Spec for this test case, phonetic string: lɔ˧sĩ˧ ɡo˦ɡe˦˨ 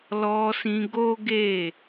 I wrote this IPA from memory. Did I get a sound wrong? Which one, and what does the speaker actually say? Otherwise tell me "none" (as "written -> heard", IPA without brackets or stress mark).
none